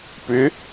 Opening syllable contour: rising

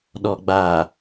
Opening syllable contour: low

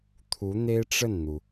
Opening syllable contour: rising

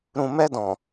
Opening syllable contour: low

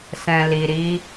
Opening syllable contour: low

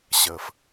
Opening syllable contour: low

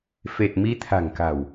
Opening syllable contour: low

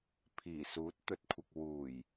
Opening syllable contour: low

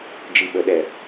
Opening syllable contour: low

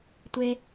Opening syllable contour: high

